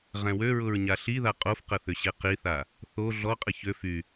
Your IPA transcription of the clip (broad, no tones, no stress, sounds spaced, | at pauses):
ʁ ɛ̃ w ø ɹ ʊ ɹ ɲ a ɬ i ð a qʼ o f q ə θ ʏ ɕ e q i θ a | θ o ɮ ɔ qʼ ə ç ø f y